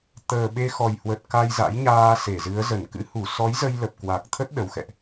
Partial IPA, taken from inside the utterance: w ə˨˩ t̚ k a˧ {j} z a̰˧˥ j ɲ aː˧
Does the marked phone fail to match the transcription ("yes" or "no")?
no